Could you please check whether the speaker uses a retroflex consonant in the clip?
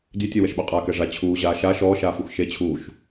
yes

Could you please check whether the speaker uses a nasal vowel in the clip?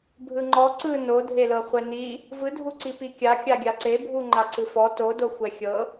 no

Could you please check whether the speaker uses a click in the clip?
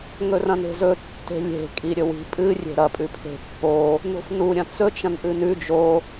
no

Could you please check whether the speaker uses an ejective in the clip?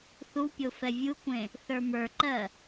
no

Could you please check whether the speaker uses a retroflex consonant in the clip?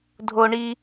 yes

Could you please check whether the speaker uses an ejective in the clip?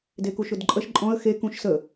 yes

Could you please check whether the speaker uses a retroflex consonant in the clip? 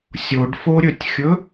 yes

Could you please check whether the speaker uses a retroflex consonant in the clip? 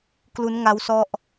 no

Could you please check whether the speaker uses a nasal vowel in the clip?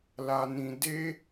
yes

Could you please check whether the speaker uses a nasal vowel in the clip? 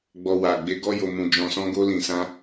yes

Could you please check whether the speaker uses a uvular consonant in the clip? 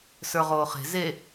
yes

